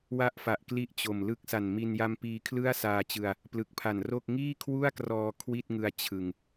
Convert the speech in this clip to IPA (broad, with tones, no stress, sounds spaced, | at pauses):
w a˥˩ ʔ f a˨˩ ʔ k l i˦˥ ʔ t͡ɕ o˨˩ m l ɯ˥˩ k̚ s a˨˩ n m i˧ n j a˦˥ m p iː˧ kʰ l ɯ˥˩ a̯ s aː˧ t͡ɕ ɯ˧ a̯ | p l ɯ˨˩ k̚ pʰ a˨˩ n r o˥˩ k̚ ŋ iː˥˩ kʰ w u˥˩ a̯ k r ɔː˧ kʰ w i˥˩ t̚ ŋ ɯ˧ a̯ t͡ɕʰ ɯ˧ ŋ